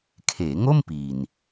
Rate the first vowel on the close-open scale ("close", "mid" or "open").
mid